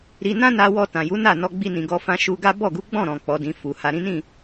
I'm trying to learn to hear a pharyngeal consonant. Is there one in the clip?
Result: no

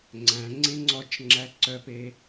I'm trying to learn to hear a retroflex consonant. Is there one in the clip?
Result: no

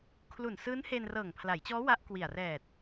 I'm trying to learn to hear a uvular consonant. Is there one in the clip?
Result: no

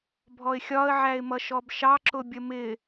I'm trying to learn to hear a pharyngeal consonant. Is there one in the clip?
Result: yes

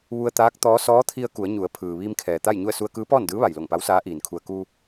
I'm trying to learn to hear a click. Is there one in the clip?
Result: no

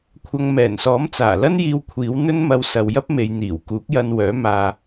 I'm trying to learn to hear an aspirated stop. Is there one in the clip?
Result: yes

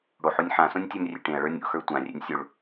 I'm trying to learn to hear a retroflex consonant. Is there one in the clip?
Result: yes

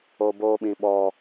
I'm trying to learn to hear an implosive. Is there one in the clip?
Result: yes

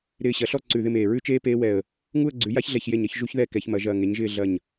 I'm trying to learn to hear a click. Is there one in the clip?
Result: yes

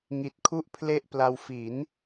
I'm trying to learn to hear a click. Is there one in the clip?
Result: no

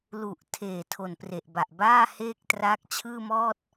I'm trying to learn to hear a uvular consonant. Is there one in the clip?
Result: no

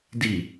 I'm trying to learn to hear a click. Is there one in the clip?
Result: no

